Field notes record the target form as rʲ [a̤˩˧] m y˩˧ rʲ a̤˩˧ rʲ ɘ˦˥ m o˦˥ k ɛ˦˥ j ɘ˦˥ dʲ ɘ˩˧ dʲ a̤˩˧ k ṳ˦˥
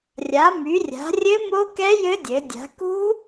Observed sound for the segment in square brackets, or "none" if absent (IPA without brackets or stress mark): a˩˧